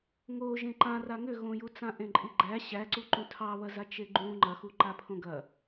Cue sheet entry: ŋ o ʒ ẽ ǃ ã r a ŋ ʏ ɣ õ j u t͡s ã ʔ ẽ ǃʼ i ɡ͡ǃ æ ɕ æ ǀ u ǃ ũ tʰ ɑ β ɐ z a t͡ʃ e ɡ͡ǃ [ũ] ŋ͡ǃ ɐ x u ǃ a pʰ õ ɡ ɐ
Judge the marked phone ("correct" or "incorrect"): correct